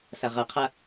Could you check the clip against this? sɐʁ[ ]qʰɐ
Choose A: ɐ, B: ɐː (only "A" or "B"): A